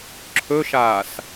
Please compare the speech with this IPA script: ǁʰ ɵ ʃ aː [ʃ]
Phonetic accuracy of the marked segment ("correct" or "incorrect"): incorrect